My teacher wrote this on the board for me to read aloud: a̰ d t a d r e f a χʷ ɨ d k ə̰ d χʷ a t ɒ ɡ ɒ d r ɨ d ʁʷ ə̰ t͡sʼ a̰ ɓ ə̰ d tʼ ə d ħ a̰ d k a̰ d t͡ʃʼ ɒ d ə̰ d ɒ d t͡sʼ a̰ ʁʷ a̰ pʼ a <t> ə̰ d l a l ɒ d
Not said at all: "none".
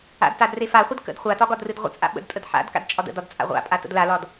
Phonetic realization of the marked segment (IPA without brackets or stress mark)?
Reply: t